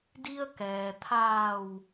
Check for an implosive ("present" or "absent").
absent